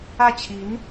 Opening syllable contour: falling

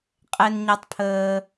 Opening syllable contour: high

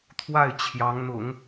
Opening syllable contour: falling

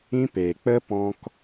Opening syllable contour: high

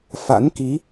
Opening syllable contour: rising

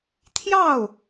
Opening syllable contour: falling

